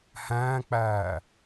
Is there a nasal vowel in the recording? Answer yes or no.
yes